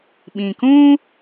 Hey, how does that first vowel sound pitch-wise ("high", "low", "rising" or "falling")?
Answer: low